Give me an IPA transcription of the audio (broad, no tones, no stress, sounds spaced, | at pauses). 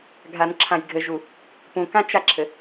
ɡʱ a n ǁʰ ã j ɡʱ ɘ ʒ u | p ũ k ã t͡ʃ a ǁʰ ɘ